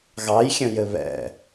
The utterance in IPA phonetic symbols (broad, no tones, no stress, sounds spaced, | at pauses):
ɣ ɑ j xʲ ə̃ j ɘ β ɛ̰